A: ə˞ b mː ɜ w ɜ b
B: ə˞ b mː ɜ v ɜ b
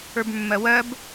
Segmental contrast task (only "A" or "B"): A